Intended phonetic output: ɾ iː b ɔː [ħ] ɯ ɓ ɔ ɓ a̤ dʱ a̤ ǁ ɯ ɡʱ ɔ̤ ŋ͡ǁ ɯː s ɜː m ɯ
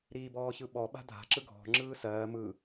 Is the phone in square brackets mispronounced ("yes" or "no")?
yes